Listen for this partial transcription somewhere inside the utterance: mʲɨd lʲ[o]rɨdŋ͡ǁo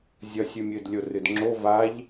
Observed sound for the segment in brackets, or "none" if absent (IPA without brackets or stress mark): o